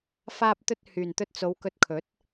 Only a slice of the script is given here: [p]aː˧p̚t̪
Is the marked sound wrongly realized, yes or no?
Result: yes